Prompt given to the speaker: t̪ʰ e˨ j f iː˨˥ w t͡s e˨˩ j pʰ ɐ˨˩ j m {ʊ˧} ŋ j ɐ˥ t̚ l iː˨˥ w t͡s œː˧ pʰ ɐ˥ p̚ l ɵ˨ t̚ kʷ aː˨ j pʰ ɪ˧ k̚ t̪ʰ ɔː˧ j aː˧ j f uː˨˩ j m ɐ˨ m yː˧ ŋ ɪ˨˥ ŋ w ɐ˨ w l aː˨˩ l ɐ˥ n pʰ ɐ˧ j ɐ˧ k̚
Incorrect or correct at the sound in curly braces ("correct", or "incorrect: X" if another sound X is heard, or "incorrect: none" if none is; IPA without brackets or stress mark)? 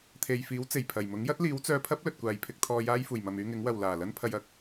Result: incorrect: ʊ˨˥